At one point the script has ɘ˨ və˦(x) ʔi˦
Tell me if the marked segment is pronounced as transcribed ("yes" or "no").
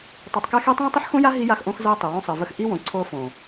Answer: yes